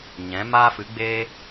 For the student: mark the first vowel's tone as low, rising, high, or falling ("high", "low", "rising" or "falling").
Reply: rising